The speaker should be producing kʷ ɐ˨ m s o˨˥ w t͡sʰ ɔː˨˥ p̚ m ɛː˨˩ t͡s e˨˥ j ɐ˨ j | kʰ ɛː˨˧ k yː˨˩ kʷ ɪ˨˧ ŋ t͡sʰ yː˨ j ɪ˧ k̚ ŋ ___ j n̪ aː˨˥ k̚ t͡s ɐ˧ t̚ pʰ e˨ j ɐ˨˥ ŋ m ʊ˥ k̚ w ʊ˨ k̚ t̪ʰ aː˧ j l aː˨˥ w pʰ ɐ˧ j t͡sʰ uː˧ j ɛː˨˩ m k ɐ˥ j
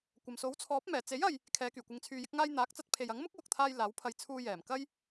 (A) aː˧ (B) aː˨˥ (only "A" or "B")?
A